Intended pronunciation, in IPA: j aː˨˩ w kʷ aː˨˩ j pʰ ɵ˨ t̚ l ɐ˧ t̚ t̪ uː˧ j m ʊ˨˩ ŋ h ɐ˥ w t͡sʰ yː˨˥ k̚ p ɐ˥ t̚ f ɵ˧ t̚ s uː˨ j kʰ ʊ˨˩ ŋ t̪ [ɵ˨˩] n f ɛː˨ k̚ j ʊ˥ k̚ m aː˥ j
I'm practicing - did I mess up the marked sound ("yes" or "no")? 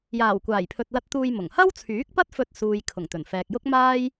no